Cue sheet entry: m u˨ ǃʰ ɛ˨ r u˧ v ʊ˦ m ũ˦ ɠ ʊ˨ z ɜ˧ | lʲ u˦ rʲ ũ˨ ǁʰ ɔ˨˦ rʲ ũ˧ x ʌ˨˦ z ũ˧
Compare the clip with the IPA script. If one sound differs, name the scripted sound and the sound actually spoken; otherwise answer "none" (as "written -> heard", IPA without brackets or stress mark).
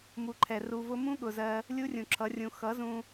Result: ɔ˨˦ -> ʌ˨˦